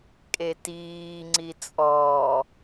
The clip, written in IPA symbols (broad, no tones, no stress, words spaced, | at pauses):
kʼetiː ŋ͡ǀit͡sʼɔː